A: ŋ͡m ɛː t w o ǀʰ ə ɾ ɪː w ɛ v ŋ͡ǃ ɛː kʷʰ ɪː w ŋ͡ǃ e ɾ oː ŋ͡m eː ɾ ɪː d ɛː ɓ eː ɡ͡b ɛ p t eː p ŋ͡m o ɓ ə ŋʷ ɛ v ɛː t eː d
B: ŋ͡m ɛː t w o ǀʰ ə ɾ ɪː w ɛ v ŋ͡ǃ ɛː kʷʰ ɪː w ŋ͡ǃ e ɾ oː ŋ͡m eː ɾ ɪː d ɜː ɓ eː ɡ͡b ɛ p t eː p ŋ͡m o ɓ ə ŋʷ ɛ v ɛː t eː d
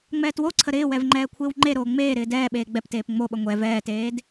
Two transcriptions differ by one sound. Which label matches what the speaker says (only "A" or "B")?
A